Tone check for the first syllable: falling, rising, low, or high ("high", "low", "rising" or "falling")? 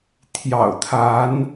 low